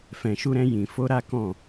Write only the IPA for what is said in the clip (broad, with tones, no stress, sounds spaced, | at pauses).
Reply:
f ɛ̃˨ ʃ u˧ ɾ ɛ̃˧ j ĩ˨ f o˧ ɾ a˦ k ɔ̃˦˨